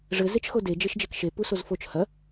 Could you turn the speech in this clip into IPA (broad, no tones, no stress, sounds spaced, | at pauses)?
ʐ ɘ z e t͡ʃ x o d e d͡ʒ e ʃ d͡ʒ e k ʃ e p u s o z f o t͡ʃ h ɐ